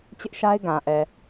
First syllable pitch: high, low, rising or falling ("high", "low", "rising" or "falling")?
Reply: high